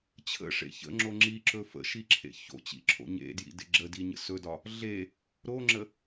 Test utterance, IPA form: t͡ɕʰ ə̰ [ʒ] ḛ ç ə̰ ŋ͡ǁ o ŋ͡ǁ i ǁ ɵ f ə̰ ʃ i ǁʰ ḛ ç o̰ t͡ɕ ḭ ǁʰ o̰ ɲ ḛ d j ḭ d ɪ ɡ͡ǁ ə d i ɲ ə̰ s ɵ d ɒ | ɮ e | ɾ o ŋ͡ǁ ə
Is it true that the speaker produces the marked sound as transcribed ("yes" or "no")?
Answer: no